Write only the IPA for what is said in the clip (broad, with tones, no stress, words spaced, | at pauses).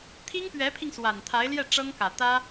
t̪ʰi˥ŋpɥɛ˧˥pʰi˧ŋ swa˨˩nt̪ʰa˧˥ɪ̯ljɛ˥˩ ʈ͡ʂɤ˥ŋkä˨˩t̪ä˥